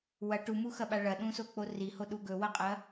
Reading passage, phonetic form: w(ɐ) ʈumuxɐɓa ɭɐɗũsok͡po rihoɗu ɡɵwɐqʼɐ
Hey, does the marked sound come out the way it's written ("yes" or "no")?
yes